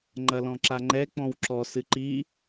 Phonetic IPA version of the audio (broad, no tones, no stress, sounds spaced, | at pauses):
ŋ͡ǃ ɐ l ɔ̃ ǁ a ŋ͡ǃ ɛ k͡p ɔ̃ w ǁ ɔ s ɨ ǃ i